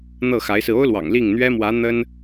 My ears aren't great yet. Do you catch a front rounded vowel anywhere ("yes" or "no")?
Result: no